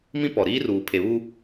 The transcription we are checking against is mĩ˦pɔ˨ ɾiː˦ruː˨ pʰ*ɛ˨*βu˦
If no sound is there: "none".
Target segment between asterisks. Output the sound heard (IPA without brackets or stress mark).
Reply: e˨